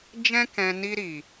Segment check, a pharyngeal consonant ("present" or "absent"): absent